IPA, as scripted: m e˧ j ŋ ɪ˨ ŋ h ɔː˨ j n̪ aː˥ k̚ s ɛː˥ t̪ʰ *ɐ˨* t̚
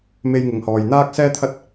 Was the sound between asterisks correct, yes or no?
no